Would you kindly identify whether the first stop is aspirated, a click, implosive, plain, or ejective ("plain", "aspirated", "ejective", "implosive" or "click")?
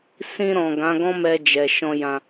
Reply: plain